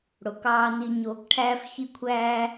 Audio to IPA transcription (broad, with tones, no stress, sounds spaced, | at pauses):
ɽ o˨ k ɑː˧ n i˧ ɲ oː˧ k ʈʰ æː˦ f ç i˦ kʷʰ æː˦